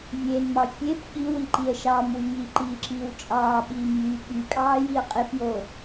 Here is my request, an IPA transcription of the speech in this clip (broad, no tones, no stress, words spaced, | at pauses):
vʲeːnmɑ fʲep ɠiwiǃiə̯ ʃɑmwy jiǃiːǁiːw t͡ʃʼɑːɓiːm jy ɓykʼɑːjiə̯ qʼepjo